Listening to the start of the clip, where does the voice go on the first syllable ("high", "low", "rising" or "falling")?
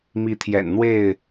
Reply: rising